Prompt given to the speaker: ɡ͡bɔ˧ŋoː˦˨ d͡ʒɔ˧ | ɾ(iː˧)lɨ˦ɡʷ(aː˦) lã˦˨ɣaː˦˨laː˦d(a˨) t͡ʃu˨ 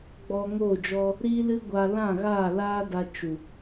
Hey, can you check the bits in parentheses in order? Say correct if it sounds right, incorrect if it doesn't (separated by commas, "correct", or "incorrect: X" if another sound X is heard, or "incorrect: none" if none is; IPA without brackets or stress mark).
incorrect: iː˦, incorrect: aː˧, incorrect: a˧